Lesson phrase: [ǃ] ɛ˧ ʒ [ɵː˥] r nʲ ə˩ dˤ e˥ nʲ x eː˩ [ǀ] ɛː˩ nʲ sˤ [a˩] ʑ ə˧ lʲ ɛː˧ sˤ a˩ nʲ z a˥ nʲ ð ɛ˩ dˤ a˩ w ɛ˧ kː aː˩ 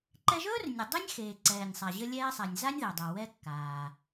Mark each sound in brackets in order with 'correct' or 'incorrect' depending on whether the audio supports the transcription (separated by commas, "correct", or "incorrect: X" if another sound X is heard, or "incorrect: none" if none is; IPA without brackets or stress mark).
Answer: correct, correct, correct, correct